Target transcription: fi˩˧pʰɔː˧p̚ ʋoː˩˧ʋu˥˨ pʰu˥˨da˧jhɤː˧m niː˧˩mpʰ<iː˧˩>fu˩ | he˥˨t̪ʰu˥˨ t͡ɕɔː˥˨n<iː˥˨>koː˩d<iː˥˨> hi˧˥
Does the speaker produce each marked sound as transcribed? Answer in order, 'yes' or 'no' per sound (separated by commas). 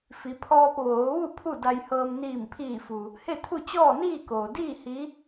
yes, yes, yes